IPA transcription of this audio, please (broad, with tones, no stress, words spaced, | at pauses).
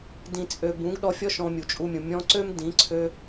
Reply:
dĩ˨t͡sʼø˨ bũ˨˦ɡ ɗɔ˧fʲɔ˦ ʃɔ̃˧mʲu˨t͡ʃʼu˧mʲũ˨ mʲɔ̃˧ǀø˦m dĩ˨˦ǀʰø˦